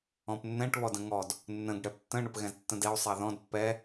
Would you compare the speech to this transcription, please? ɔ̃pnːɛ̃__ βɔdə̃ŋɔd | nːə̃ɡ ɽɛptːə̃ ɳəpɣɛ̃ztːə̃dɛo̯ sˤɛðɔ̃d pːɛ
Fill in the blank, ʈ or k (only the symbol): ʈ